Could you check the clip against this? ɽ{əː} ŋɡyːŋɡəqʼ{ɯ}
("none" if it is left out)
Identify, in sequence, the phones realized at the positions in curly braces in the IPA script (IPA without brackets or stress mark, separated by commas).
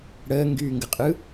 əː, ɯ